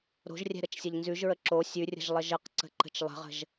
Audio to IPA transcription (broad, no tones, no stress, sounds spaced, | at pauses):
ɾ o̤ ʒ rʲ ɛ̤ ɾ ə t͡ʃ sʲ ə ʎ n z ʉ ʒ ɹ ə ǁ o sʲ ʉ rʲ ə̤ ʒ lˠ ə ʒ ə q ǀ ə̤ ǃ ə̤ t͡ʃ lˠ ə̤ ʁ ə̤ ʒ